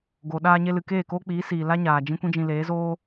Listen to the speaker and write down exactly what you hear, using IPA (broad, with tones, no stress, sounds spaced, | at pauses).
ɡ o˨ ɗ aː˧ ɲ e˧ l ɨ˨ k eː˦˨ k oː˦ k͡p iː˨˦ s iː˨ l a˦ ɲ aː˨ d͡ʒ ĩ˦ kʷ ĩ˦ d͡ʒ ĩ˧ l eː˨˦ z oː˦